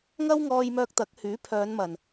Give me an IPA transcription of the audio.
ŋ ɐ˥ w ŋ ɔː˧ j m œː˧ k̚ t̪ ɐ˨˥ k̚ h yː˨˥ pʰ œː˨˧ n m ɐ˨˩ n

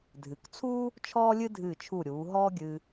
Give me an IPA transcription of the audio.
dʱ ɨ˩˧ k t͡sʰ uː˥ | t͡ʃʰ ɔː˥ lʲ ɨ˥ dʱ ɨː˧˩ t͡ʃʰ u˧˩ ɾʲ uː˩˧ ɦ ɔː˥ ɡʲ ɨ˧

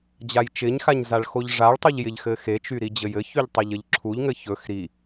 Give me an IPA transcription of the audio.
d͡ʑ a j t͡ʃ ɪ ɲ x a ɲ z a ɭ x o ʎ ʐ a ɭ tˤ u ʎ j ɪ ʎ x ɘ x e t͡ʃ y ɾ i d͡ʑ ɘ j ɘ ç y ʎ tˤ e ʎ ə ʎ ǁʰ u ʎ ŋ ɘ ç ɵ x ɾ i

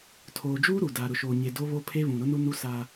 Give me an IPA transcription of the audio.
tʰ oː˨ d͡ʒ uː˦ ɾ u˨ d aː˨ ɾ ʊ˨ ʃ oː˨ ɲ e˨ d o˦ β o˦ pʰ e˦ β ũ˨ ɾ ʊ˦ n u˦ n u˦ s a˦

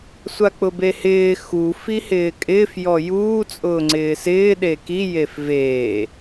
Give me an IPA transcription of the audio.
sʷ a k͡p ʊ b e h ɪː x u f i h ɪː kʼ ɪː f j ɔ j uː t͡sʼ ʊː ŋ͡ǀ ɪː s ɪː ɗ e k i j e f v eː

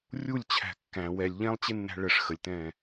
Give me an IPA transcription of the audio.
rʲ u lʲ t͡ɕʰ æ̤ kː æ̃ w ɛ lʲ ʎ ɛ̃ lˠ t͡ɕ ɪ nː æ̤ ɭ ə ʂ x ə lʲ t ɛ̃ː

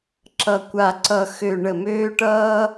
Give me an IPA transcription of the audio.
ǁ ʌ˨˩ kʷ a˨˩ ǀ ʌ˨˩ x ø˨˩ ɳ ə˨˩ m øː˧ ʈ ʌː˧

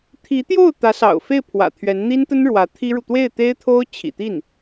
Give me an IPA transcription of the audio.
t̪ʰ i˧˥ t̪ j o˥˩ ʊ̯ t̪ ä˧˥ s ɑ̰˨˩ ʊ̯ f e˥˩ ɪ̯ pʰ w ä̰˨˩ t̪ʰ ɥ ɛ˧˥ n n̪ i˥ n t̪ ə˥ n ɻ w ä˧˥ t̪ʰ i˥ ɻ u˨ t̪ w e˥˩ ɪ̯ t̪ e˥ ɪ̯ t̪ʰ o˥ ʊ̯ t͡ɕʰ ḭ˨˩ t̪ i˥˩ n

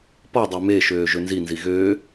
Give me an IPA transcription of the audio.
p ɔ dˤ ø m e ʃ øː ʒ ø n z i n z i ɣ øː

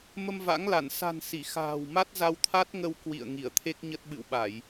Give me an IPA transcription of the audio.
m ə˧ m v a̰˧˥ ŋ l a˧˩ n s a̤˨˩ n s i˧˩ x a̤ː˨˩ w m a˦˥ t̚ z a˧ w t̪ʰ a˦˥ t̚ ŋ ə˧ w k w ḭ˧˨ ə̯ ŋ i˧˩ ə̯ t̪ʰ e˦˥ k̚ ɲ ə˦˥ t̚ ɓ ɨ̰˧˨ w ɓ a˧˩˨ j

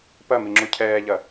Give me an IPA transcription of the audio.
p ɐ m i ŋ͡ǁ u cʰ ɛː ʎ ɐ

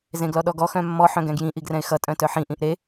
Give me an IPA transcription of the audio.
z ẽ ɡ l ɔ ɗ ɔ ɡ ɔ x œ̃ mː ɔ ħ œ̃ ɡ ɛ̃ ɡ j ĩ ʔ i ɡ r ɛ̃ ɪ̯ x ʌ tʼ œ̃ t œ ħ ĩ ʔ ĩ ʔ ɾ e

